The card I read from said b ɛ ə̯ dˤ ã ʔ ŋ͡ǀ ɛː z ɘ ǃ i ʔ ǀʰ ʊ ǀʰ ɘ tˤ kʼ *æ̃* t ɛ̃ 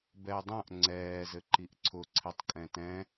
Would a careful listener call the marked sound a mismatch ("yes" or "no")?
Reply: yes